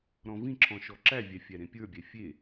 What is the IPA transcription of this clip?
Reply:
ɾ ɔ̃ v ĩ ǁ ɔ̃ ʃ ɔ ǁ æ vʲ æ fʲ æ ɾ ẽ pʲ ə˞ bʲ æ fʲ e

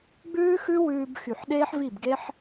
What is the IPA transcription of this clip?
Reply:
ɡ͡b ʉː˦ x ʉ˦ w ʉː˧ b x y˨ ħ ɗ eː˦ ħ v i˦˨ b ɡ e˦ ħ

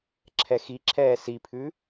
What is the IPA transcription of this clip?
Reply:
ǁʰ ɛ x i ǁʰ ɛː s i pʰ ʉ

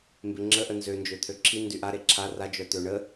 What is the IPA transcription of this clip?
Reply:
m b e ŋ͡ǁ ə ʔ ə n z ø n d͡ʒ ø t̪ʰ ø ǁʰ i n d y ʔ a ɾ e ǁʰ a r a d͡ʒ œ t̪ ø ɳ ə

